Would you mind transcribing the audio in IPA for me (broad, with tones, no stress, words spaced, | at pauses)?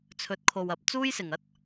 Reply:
t͡sʰɵ˨˥t̚kʰo˨wɐ˨p̚ t͡suː˥jsɪ˨˩ŋɐ˥t̚